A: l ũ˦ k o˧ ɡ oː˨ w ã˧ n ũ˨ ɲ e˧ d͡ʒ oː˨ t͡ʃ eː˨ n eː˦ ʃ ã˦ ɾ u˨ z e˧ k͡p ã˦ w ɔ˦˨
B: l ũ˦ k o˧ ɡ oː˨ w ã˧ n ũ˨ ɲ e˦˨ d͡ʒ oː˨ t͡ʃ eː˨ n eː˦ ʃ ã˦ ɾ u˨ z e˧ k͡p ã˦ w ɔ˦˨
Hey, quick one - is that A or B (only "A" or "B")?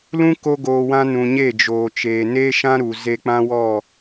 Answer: B